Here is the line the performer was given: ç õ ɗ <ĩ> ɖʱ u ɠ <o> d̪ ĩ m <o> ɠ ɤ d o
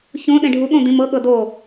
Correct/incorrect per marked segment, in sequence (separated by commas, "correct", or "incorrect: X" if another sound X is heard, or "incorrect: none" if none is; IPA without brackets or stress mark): incorrect: ẽ, incorrect: õ, incorrect: ɤ